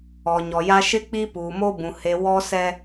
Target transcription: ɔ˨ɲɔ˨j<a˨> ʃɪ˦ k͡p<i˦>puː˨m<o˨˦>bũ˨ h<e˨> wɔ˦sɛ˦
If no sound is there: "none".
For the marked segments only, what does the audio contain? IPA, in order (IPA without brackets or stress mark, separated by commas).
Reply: a˦, i˦, o˦, e˨